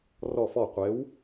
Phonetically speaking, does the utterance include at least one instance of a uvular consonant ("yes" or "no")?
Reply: yes